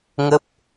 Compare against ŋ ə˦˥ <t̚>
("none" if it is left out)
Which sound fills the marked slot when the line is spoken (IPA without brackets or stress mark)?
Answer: p̚